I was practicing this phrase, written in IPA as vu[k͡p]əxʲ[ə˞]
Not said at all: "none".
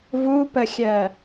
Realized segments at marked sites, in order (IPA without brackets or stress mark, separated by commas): p, ɜ